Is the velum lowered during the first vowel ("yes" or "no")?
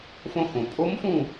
yes